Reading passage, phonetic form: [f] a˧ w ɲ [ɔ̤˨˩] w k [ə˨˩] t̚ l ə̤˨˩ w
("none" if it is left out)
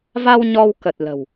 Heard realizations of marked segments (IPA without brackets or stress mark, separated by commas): v, ɔ˧, ə˨˩